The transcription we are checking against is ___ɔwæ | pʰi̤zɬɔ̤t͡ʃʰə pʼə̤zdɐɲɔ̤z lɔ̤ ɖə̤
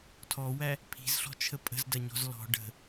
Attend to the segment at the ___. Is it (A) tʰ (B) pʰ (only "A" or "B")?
A